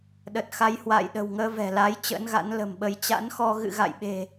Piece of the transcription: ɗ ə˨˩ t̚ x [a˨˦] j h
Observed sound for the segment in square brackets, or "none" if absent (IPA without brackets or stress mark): a˨˦